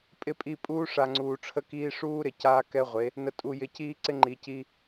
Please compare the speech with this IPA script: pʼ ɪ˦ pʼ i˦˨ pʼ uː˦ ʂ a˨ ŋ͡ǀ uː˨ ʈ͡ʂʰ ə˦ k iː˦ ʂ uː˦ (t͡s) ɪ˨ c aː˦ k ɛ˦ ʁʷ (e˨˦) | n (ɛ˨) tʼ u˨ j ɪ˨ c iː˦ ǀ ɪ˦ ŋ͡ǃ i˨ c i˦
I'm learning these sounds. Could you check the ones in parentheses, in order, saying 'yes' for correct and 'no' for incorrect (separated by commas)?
no, yes, no